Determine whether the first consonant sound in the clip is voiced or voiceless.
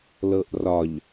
voiced